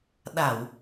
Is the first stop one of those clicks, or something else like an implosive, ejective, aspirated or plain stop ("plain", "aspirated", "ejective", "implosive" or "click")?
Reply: implosive